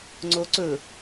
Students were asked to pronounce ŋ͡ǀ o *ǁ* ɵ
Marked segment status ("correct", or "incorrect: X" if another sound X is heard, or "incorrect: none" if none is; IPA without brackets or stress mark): incorrect: ǀ